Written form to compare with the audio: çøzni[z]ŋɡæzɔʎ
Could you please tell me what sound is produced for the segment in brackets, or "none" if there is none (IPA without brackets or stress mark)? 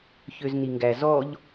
none